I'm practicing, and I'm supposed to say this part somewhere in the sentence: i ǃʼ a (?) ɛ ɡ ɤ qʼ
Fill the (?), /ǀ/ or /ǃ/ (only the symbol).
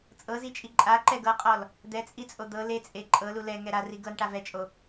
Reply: ǃ